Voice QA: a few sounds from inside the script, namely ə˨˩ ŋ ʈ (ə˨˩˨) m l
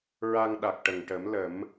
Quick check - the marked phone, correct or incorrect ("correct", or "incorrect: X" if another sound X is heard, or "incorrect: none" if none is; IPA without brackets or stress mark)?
incorrect: ə˨˩˦